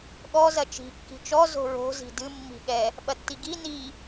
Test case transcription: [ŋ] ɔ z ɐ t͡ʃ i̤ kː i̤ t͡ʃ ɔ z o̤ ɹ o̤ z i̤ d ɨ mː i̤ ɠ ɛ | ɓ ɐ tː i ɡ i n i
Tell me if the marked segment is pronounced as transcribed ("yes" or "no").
no